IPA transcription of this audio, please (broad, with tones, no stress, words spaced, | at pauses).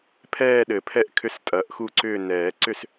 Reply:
pʰɛː˦˨ɗɘ˨˩˦pʰɛ˦˨ʔkʰʏ˨˥s tʼɐ˨˩˦ʔxu˦˨ǀʏː˦˨ nɛː˨˩˦ ǀʏ˦˨s